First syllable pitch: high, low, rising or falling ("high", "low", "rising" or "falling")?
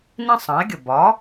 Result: high